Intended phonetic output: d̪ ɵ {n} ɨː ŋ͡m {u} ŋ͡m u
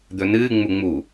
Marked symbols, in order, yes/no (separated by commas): yes, yes